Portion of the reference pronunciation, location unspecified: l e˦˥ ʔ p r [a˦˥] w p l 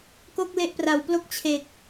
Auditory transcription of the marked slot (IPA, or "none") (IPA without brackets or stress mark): a˨˩